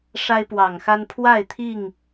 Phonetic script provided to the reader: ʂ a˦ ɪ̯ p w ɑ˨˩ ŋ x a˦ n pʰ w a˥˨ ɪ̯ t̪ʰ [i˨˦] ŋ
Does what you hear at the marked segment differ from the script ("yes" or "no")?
yes